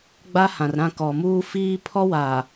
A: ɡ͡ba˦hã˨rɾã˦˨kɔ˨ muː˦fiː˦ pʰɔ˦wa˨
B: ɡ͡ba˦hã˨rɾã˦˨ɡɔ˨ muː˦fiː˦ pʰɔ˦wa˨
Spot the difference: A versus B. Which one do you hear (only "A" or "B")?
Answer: A